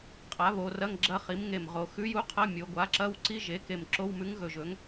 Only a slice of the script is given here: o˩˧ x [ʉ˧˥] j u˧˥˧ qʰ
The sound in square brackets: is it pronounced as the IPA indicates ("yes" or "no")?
yes